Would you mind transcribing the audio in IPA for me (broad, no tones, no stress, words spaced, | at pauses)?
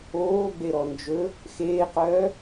oːɡ͡beɾɔ nd͡ʒɵ | xeːqœː